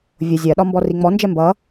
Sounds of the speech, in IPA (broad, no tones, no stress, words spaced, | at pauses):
vʲʊ zʲɜɗɒ mbɔriŋ͡mɔnd͡ʒɛ mbʌ